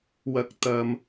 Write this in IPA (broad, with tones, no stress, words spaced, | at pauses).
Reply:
wɐ˧k̚ t̪ɐ˧m